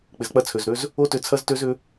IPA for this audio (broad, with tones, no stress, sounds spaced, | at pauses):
k͡p ɪ˩ z k͡p ɐ˧ t͡sʰ ø˩ z ɾ ø˧ z | o˦˥ t ʏ˧˩ t͡sʰ ɐ˦˥ z t ø˦˥ z ʏ˦˥